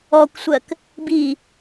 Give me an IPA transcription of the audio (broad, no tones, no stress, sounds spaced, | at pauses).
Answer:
ɔ kʷ sʷ ɜ k | b i